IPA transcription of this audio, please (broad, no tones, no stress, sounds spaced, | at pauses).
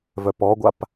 v œ p ɔ ɡʷ a p